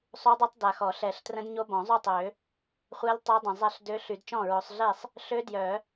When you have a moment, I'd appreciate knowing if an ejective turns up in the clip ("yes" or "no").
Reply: no